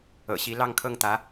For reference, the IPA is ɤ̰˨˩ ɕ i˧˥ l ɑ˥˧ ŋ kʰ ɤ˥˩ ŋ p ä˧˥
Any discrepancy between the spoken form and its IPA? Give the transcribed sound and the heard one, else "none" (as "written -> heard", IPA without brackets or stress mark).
p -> t̪